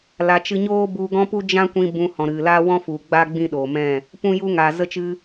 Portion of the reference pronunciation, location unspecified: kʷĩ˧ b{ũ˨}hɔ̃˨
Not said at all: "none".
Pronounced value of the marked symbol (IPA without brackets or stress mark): ũ˧